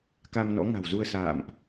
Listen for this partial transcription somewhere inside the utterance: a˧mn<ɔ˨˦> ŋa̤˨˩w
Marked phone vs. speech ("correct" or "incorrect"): incorrect